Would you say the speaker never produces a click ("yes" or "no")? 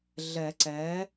no